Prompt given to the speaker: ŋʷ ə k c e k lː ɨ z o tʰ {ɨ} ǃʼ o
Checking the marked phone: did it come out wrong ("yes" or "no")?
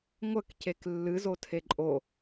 yes